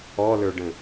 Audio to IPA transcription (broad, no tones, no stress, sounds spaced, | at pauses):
ɔ l ə˞ ɖ ə̃